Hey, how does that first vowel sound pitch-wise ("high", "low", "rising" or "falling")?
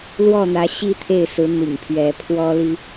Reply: falling